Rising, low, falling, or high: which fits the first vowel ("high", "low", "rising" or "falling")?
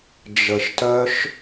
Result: low